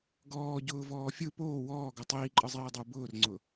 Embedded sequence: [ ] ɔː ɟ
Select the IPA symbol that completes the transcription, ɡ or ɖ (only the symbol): ɡ